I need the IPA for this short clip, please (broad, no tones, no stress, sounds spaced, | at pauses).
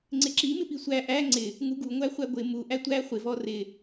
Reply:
ŋ͡ǀ ɪ ǁ i m ɪ p i sʷ æ ʔ æ ŋ͡ǀ ɪ | ŋ u ɡ u ŋʷ æ χʷ æ ɡʷ ɪ m u ʔ æ tʷ æ χʷ ɪ v ɔ r ɪ